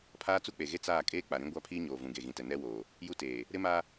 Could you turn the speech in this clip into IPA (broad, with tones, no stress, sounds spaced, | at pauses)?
pʰ aː˦ t͡s u˦ k͡p e˨ ɣ e˦ t͡s aː˦˨ kʼ eː˦ k͡p a˨ ɾ ĩ˦ ɡʷ a˦ pʰ iː˦ ɲ oː˨ v ũ˨ ɡ e˨ ɣ ĩ˨ t ɛ˨ n ɛ˦ w oː˨ | j u˦ t eː˨ | ɾ ɪ˦ m a˦